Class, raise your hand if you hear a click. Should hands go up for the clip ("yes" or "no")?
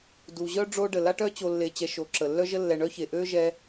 yes